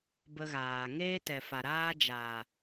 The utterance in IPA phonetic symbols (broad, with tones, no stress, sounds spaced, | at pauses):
b ə˧ ɣ aː˨ ŋ eː˦ t ɛ˨ f a˨ ɾ aː˦ d͡ʒ aː˨